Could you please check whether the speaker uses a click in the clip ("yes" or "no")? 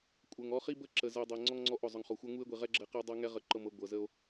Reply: yes